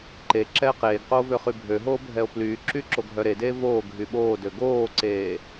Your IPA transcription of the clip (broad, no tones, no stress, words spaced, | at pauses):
ǃe ǁɛːqeːɡqoː vøχybʱøɦoː bʱɛo̯plyːǁy ǁoɡʱœɾedeː voː ɡʱyɓoːdø ɡoːǀeː